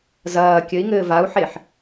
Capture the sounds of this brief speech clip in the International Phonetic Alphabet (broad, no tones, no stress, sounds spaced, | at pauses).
z ɐː kʲ ɘ i̯ ŋ ɘː v a u̯ ħ e ħ